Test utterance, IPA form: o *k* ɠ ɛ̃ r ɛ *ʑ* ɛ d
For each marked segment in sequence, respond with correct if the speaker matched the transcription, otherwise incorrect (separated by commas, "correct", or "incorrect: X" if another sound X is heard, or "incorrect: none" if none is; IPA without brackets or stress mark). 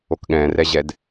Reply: correct, correct